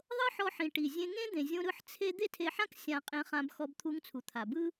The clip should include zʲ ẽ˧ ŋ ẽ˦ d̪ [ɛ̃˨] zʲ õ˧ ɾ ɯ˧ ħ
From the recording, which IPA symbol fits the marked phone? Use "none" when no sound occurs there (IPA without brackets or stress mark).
ẽ˨